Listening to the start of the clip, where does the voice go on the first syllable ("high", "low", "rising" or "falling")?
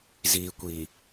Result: low